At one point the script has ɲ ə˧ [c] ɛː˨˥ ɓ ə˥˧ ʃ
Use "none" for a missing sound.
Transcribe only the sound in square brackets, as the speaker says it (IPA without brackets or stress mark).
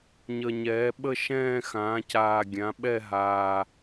ɲ